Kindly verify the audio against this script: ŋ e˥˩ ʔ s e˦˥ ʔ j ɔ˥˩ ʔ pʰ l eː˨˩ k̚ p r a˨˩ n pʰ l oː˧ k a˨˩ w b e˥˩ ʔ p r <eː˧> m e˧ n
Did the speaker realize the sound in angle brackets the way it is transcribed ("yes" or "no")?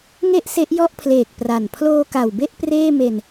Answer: no